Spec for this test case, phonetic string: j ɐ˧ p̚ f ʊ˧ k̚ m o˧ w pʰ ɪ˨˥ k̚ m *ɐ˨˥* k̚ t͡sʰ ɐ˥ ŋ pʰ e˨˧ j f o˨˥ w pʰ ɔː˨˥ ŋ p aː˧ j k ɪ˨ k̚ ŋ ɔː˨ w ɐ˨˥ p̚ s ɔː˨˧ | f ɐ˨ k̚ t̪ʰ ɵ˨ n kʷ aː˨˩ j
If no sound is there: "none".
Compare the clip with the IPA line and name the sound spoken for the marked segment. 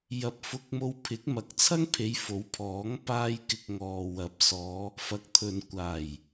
ɐ˨˥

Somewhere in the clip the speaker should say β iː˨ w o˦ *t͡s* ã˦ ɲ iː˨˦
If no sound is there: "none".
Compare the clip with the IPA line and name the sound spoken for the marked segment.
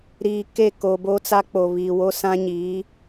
s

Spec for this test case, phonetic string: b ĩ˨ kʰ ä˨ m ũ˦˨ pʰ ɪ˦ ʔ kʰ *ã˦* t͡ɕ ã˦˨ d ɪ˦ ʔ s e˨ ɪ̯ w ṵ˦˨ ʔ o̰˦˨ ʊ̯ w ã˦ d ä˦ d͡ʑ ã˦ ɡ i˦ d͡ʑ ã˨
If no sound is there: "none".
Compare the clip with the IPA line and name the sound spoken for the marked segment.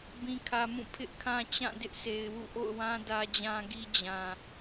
ã˦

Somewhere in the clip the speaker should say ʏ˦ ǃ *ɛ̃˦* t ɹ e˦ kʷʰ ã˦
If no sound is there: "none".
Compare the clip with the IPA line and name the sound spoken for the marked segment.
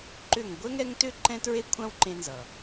ɛ̃˦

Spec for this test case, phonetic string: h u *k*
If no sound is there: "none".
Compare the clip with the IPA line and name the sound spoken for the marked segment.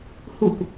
k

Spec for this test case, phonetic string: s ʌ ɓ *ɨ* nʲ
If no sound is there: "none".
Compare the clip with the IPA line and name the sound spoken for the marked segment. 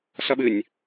ɨ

